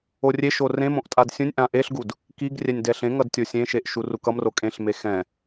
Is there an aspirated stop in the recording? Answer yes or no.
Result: no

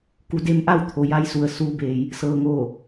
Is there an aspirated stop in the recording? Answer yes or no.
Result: yes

